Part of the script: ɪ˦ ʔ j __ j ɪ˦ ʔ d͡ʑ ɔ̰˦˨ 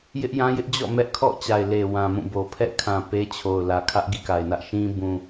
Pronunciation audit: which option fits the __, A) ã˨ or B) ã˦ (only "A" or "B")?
B